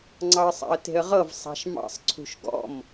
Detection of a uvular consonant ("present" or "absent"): present